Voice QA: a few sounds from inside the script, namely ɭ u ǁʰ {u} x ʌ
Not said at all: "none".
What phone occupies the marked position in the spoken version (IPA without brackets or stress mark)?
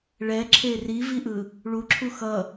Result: u